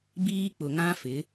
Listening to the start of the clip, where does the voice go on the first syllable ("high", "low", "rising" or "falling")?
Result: high